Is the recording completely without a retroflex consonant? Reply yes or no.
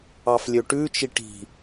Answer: no